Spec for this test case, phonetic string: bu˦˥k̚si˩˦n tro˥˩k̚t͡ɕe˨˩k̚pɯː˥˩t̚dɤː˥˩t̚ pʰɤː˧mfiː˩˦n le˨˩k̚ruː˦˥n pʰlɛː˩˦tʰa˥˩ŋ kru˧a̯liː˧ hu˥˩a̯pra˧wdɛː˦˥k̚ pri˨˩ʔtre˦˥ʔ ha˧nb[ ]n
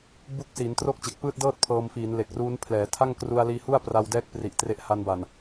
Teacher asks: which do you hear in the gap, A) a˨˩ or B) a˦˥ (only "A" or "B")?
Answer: A